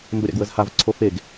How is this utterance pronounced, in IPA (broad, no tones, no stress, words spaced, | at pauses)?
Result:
mbəɾʲa̰ɡwəzhav ǀʰofeɡ